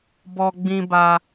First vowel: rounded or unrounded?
rounded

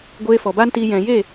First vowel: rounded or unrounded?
unrounded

